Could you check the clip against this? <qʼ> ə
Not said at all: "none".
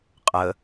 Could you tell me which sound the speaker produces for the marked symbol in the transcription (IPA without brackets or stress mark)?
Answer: qʼ